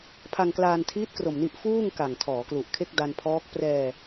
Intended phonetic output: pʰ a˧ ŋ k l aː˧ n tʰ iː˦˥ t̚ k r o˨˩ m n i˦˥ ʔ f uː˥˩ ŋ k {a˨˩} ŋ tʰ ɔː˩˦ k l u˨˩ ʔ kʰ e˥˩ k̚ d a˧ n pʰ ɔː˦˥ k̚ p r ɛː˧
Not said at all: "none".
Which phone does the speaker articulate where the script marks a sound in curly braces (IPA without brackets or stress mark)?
a˨˩